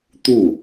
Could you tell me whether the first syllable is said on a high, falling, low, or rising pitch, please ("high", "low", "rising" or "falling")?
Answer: falling